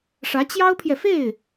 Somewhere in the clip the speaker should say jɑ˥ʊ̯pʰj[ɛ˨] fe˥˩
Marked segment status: correct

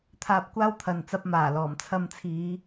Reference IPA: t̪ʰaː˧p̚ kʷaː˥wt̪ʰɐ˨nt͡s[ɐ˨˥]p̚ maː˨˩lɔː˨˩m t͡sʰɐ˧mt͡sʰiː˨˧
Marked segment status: incorrect: ɐ˧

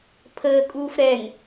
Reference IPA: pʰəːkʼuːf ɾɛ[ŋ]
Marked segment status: correct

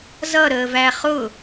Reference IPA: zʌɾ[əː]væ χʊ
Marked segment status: correct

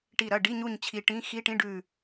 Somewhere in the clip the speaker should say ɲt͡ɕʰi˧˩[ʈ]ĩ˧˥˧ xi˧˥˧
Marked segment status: correct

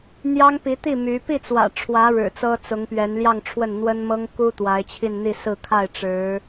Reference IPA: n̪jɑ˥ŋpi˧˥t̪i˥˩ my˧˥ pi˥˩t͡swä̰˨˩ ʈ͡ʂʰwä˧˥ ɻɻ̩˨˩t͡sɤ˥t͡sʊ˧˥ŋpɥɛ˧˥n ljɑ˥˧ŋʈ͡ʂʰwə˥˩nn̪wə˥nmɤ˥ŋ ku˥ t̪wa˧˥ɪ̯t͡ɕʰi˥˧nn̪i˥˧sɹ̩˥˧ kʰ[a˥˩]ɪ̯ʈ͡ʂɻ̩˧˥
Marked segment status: correct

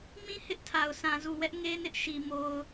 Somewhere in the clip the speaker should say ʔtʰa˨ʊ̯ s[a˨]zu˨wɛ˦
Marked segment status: incorrect: ã˨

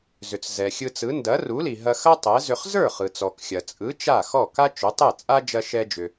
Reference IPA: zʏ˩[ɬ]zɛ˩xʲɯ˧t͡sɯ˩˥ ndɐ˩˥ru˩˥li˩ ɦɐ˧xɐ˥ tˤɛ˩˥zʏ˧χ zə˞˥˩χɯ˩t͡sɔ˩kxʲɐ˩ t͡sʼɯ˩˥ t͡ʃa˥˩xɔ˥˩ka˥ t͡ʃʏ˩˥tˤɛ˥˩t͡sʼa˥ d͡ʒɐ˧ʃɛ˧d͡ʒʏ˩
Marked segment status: incorrect: t͡s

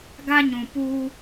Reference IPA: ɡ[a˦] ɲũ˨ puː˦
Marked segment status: correct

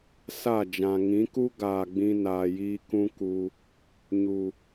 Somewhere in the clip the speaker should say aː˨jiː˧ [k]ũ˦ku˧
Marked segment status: correct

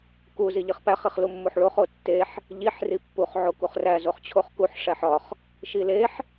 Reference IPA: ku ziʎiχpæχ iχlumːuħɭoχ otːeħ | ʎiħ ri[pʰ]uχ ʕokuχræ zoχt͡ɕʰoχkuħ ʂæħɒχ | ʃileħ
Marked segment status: incorrect: pː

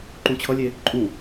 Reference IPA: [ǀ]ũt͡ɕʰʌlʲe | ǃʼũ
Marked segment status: incorrect: ǃ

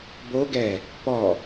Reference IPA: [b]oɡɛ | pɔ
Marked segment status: correct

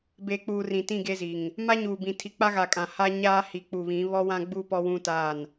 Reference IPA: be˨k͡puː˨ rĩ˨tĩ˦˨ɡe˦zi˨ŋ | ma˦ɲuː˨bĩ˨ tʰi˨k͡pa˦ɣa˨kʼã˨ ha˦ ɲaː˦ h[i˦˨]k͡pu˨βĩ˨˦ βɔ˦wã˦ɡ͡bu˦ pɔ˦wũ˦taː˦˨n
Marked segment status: incorrect: i˨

